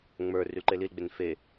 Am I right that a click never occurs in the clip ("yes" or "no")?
no